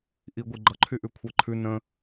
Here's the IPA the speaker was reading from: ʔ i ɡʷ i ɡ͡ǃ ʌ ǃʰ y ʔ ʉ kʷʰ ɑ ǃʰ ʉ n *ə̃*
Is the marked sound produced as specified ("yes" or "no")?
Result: yes